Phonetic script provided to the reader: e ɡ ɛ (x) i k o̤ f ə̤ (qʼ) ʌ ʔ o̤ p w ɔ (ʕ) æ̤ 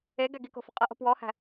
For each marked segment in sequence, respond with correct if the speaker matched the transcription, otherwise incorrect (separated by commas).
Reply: incorrect, correct, incorrect